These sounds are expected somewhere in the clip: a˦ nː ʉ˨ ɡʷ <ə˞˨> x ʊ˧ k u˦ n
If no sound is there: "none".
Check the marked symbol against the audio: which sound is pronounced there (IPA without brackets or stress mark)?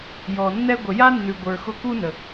ə˞˨